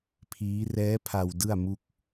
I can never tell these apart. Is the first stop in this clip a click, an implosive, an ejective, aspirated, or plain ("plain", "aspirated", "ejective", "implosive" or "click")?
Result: aspirated